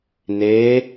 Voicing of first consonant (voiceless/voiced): voiced